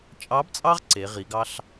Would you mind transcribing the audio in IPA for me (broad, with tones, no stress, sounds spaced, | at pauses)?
t͡ʃʼ ɑ˧˥ b t͡sʼ ɑ˥ ʁ ǀ e˩˧ ʁ i˩˧ ɡ ɑ˥ ɬ